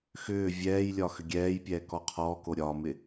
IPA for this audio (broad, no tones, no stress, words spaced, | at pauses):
xʏː vʲɛːjlʲɒ xʏɡʲɛːjpʲɛː kɔqʰɔːko ɾʲɒmɪ